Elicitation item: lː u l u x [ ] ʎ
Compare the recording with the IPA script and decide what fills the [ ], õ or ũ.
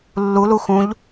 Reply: ũ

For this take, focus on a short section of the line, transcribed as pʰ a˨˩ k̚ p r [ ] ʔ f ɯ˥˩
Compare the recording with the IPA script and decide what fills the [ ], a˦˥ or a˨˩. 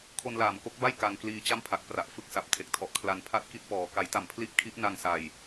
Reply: a˨˩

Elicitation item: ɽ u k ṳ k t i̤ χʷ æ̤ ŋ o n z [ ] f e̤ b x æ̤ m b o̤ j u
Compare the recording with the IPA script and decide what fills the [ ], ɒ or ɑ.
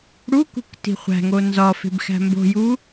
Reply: ɒ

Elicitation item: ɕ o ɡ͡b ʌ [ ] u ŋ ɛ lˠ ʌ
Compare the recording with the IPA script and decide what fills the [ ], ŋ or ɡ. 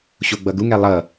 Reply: ɡ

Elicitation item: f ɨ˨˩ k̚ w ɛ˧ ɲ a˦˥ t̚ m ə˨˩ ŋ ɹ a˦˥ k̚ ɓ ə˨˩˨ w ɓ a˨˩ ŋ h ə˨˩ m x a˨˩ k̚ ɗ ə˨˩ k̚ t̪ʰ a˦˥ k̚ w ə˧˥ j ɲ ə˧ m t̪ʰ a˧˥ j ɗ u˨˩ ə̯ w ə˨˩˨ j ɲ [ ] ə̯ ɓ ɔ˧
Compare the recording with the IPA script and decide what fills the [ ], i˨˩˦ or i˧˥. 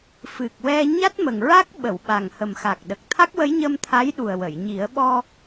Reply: i˨˩˦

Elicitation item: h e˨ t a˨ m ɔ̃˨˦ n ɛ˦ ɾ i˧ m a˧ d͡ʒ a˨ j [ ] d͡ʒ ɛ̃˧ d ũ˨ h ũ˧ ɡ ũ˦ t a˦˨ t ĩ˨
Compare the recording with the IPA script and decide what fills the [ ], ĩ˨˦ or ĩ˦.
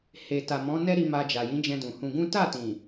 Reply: ĩ˨˦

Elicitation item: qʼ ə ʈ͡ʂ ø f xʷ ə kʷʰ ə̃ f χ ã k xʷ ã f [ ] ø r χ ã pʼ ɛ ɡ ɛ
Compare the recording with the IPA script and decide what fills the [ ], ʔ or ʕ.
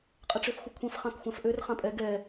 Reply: ʔ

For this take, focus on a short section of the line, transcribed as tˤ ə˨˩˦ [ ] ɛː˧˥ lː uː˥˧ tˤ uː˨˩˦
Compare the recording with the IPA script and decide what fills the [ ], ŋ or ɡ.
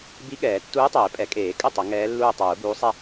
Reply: ŋ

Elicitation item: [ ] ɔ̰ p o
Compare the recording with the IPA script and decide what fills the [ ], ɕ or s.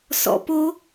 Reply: s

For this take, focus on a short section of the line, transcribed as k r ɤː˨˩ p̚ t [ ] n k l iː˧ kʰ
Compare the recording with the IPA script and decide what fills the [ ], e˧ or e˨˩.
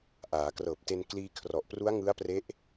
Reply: e˧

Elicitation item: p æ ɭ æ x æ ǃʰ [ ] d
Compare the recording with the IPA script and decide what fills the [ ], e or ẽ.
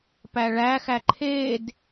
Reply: e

